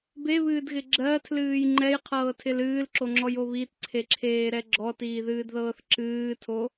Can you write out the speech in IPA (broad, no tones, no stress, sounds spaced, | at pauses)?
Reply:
b e β ɨː d ɣ ɪ ɡ͡ǁ ɜ tʰ l ɨː j ŋ͡ǃ ɛ j qʰ ɤː tʰ ɪ l ɨː l ǁ o ŋ͡ǁ ɔ j o β i t ǀʰ e ǁʰ eː ɾ ɛ ɡ͡ǁ ɔ t iː ð ɨː d ð ɤː θ ǁ ɨː tʰ o